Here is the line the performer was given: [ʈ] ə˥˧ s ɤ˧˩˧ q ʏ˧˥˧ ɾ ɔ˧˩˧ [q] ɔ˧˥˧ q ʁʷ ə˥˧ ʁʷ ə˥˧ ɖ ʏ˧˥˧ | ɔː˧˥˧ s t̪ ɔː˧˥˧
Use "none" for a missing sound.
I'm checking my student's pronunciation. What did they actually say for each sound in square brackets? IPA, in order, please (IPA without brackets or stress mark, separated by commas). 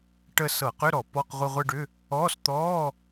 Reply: ʈ, p